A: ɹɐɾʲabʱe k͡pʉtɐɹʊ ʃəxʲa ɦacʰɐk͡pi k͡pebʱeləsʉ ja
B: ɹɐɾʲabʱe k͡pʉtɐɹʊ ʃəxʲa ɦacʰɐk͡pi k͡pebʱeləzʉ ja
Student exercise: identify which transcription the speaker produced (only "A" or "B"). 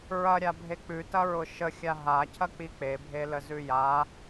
B